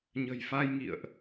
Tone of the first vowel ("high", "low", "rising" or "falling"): low